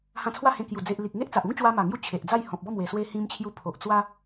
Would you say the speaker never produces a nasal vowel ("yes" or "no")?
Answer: no